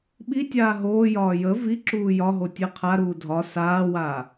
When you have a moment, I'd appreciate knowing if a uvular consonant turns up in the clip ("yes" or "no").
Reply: yes